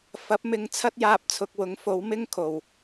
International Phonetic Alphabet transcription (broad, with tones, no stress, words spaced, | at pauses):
fɐ˨˥p̚mɪ˧ŋ t͡sʰɐ˥t̚jaː˧p̚t͡sʰʊ˨k̚ wʊ˨˥ŋfo˨˥w mɪ˥ŋkʰo˨˩w